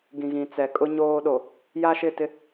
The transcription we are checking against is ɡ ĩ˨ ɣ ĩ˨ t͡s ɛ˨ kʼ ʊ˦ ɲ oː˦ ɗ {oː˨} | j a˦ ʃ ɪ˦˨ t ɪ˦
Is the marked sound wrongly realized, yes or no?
yes